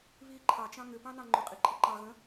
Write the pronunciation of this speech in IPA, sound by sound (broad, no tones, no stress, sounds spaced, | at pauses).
β i ǃʰ ɑ t͡ʃ ɑ̃ ŋ ʏ p ɑ̃ n ɑ̃ ŋ͡ǃ ʏ qʼ i ǃʼ ɘ ǃ ɑ ɣ ə̃